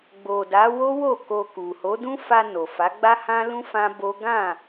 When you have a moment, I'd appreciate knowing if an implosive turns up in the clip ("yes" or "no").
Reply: no